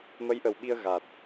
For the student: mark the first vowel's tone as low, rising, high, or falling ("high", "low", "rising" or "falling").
rising